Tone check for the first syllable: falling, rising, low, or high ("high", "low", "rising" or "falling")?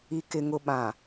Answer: low